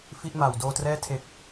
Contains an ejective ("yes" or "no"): no